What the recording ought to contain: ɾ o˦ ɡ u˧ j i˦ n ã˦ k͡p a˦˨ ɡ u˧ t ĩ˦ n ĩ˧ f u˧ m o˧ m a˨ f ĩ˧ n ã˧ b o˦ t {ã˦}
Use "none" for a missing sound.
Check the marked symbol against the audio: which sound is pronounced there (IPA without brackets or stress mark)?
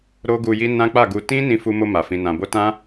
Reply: ã˦